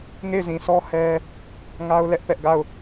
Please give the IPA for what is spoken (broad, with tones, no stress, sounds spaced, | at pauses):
ŋ e˦˨ ɪ̯ z ĩ˨ s ɔ˦ h ɛ˦ | ŋ a˦ ʊ̯ l ɛ˦ ʔ p ɛ˦ ʔ ɡ a˦˨ ʊ̯